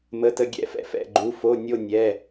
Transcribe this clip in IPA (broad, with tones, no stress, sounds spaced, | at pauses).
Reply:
m ə˧˥˧ t ə˥˧ ɡʲ ɛ̰˥˧ f ɛ̰˥˧ f ɛ̰˧˥˧ ɡ͡ǃ u˧˥˧ f o˧˥˧ nʲ o˥˧ nʲ ɛ˧˥˧